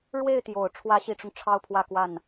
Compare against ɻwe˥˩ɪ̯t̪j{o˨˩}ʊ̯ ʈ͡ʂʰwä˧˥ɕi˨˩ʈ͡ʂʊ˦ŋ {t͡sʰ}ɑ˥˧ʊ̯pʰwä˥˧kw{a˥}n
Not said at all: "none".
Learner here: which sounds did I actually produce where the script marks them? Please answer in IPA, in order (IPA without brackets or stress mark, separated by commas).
o˨˩, ʈ͡ʂʰ, a˥˩